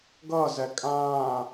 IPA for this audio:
ɡ ʌː z ɛ kʼ ãː

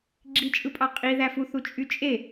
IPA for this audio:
ɡ͡ǁ i t͡ʃʼ ɯ pʼ ɑ qʼ i ð æ f u θ u t͡ʃʼ y t͡ʃʼ e

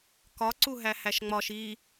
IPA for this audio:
k ɒ ǀ u ɦ æ h æ ʃ ŋ͡m ɒ ʃ i

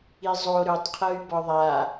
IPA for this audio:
i zˤ o ɾ ɵ tˤ qʰ ɤ y̯ b ɒ ðˤ a

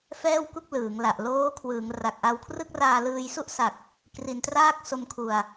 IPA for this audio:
f ɛː˥˩ w k u˥˩ k̚ l ɯː˩˦ ŋ l a˨˩ ʔ l oː˦˥ kʰ w ɯː˩˦ ŋ r a˨˩ k̚ ʔ a˧ w kʰ r ɯ˥˩ k̚ r aː˧ l ɯː˧ j s u˥˩ ʔ s a˨˩ k̚ | k r i˧ n t r aː˥˩ k̚ s o˧ m kʰ u˨˩ a̯

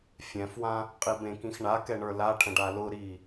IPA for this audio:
fʲ ɛ̃ f w ã | qʼ i b ẽ k ĩ x ɳ a k ɛ ɳ ə˞ l a ʈʰ ə̃ ɖ a l ʊ ɾ i

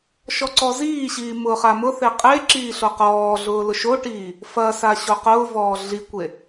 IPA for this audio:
ʃ ɔ ǀ ɔ z iː ɕ iː m ʊː χ a m ʊ θ e qʼ e ǁ iː ɬ o q ɔː ɮ ʊː l ʊ ʃ o ʈ iː | f ɐ s a ɕ o q ʊː v ɔː ɮ i kʷ e

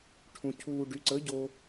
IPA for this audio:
ʈʰ ũ˧ cʰ uː˧ ɖ y˨˥ ǀ ə˨˥ ɟ o˧

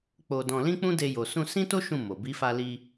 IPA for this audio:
k͡p o˧ d ɔ̃˧ l ĩ˦ k͡p ũ˦ d e˧ j o˨ s ũ˧ s ĩ˦ t o˦ ʃ ũ˦˨ m o˨ b i˨˦ f a˧ l i˧

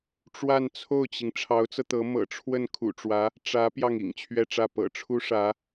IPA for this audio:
ʈ͡ʂ w a˥˧ n t͡sʰ o˥˩ ʊ̯ t͡ɕ i˩ ŋ ʈ͡ʂʰ ɑ˧˥ ʊ̯ t͡s ɤ˧ t̪ ɤ˧˥ m ɤ̰˨˩ ʈ͡ʂʰ w ə˥˩ n kʰ ṵ˨˩ ʈ͡ʂ w ä˧˥ | ʈ͡ʂ ä˧˥ p j ɑ˥˩ ŋ ḭ˨˩ ŋ t͡ɕʰ ɥ ɛ˥˧ ʈ͡ʂ ä˥˩ p ɤ̰˨˩ ʈ͡ʂʰ u˥ ʂ ä˧˥

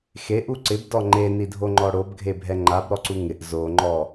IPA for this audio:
x e ʔ u ǀ ɪ b d ɔ ŋ͡ǃ e n i dʱ o ŋ͡ǃ ɔ ɽ o b ɡʱ e bʱ ɛ ŋ͡ǃ a b ɾ ɔ ǀ u ŋ ɪ ʔ z o ŋ͡ǃ ɔ

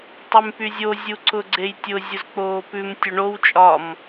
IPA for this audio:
tˤ y m p y zʲ o zʲ u ǀ ʊ ɡ͡ǀ e j tʲ ʊ zʲ ʊ z k͡p oː p ʉ m tʲ ʊ ɳ o w t͡ʃʼ ɒ m

